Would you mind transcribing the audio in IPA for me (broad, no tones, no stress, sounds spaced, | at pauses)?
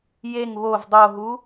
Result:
j e ŋ β o v dˤ o ɦ u